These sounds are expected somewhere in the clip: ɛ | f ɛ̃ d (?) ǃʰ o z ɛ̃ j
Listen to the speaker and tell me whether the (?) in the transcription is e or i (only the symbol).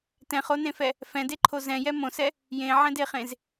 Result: e